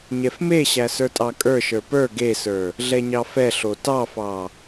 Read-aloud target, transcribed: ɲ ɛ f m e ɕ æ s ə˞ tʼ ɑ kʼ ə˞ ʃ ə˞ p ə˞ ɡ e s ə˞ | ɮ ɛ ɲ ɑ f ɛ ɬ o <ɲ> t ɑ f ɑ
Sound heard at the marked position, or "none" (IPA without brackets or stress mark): none